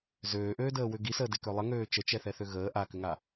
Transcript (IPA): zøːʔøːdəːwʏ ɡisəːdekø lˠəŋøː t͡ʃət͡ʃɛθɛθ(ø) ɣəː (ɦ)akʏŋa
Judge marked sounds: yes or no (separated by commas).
yes, no